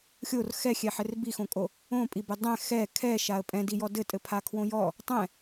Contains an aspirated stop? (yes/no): yes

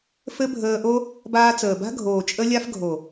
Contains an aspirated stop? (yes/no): no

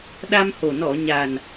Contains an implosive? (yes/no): yes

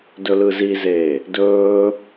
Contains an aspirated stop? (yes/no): no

